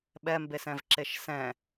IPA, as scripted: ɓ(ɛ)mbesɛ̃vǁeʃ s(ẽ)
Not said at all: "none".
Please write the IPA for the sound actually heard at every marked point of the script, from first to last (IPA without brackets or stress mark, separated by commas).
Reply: ɛ, ɛ̃